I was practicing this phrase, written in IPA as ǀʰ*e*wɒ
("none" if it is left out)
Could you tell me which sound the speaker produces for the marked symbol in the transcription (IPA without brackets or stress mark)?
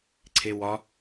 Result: e